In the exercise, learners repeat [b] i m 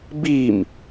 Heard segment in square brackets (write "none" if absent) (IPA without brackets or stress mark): b